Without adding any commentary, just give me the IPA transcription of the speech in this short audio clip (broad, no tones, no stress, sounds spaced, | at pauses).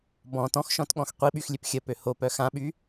b ɔ̃ t ɔ̃ x ʃ ɔ̃ t ɠ ɔ̃ x qʷ i ɓ y x lʲ ø p xʲ ə p ø h o p œ x ã ɓ y